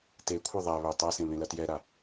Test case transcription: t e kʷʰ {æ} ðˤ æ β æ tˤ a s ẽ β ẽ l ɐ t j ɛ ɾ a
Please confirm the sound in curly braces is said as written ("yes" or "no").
no